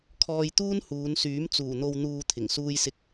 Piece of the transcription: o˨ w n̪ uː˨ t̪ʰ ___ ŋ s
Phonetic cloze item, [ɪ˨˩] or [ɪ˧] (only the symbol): ɪ˨˩